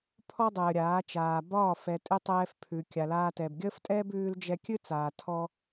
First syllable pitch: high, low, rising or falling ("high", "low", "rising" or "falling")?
high